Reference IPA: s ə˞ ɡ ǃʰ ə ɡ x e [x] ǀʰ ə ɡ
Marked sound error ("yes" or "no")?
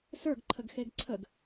yes